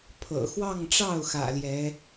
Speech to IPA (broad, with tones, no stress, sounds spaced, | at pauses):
pʰ ɤ̰˨˩ x w ɑ˥˧ ŋ ʈ͡ʂ ɑ˥˩ ʊ̯ x ä̰˨˩ l j ɛ˧˥